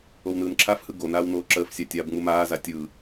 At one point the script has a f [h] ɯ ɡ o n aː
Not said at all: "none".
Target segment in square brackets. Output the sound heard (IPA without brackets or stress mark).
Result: h